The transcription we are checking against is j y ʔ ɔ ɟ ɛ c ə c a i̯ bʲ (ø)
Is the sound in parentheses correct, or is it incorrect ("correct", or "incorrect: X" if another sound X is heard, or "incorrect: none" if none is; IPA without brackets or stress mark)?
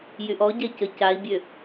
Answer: correct